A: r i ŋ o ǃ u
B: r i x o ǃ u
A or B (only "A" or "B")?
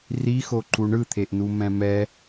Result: B